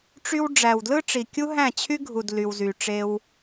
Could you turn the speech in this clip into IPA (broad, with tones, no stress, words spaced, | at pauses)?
ʈ͡ʂy˧w ɖ͡ʐæ˨wdlɯ˦ʈ͡ʂi˨ kʲu˦ɦæ̃˦˨t͡ɕʰy˦ɡʱu˨d ly˨wzy˨ ʈ͡ʂe˧w